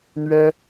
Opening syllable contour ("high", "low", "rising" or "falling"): high